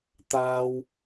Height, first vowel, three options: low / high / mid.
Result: low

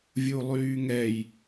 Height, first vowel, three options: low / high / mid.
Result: high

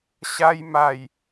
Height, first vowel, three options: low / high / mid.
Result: low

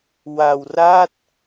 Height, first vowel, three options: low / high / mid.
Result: low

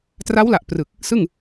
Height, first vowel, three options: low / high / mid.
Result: low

